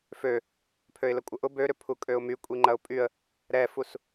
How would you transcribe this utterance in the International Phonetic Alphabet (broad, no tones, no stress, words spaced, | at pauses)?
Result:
fø | pʰøɪ̯ləkʷʼəʔʊ bøɾʏ pʰukʼøʊ̯my kʷʼiŋ͡ǃɐʊ̯pʼyə̯ | ɾɛfus